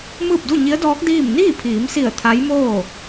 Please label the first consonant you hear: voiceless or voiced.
voiced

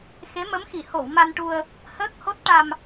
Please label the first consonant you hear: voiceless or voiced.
voiceless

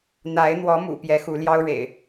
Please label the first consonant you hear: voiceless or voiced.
voiced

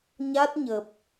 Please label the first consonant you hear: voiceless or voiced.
voiced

